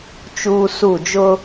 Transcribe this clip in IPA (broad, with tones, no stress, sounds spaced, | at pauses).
t͡ʃ uː˦ s u˦˨ d͡ʒ ʊ˦